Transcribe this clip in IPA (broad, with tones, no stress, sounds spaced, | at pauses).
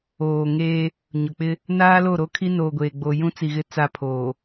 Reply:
oː˨ ŋ eː˦ | ɲ ʊ˨ k͡p ɪ˦ | n aː˦ l o˦˨ ɾ o˦ kʰ i˦ n oː˨ ɡʷ eː˨ ɡ͡b o˨ j ũ˦ t͡s i˨ ɣ ɪ˦ t͡s a˦ pʰ oː˨